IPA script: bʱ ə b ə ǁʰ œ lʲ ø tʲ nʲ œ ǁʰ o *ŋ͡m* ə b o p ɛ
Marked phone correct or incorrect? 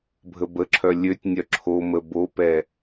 incorrect